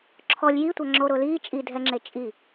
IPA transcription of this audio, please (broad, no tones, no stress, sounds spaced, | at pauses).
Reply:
ǁʰ ɔ lʲ j i tʷ a ŋ͡ǁ o ɾ ʊː l iː t͡ʃʼ i dʱ ɛ ŋ͡ǁ e t͡ʃʼ i